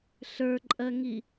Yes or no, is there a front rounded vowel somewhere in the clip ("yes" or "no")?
no